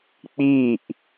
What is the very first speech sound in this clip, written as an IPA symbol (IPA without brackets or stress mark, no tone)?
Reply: k͡p